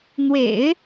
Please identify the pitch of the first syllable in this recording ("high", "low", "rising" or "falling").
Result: low